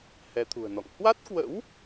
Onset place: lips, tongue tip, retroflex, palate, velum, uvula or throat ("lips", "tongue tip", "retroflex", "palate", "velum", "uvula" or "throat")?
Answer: throat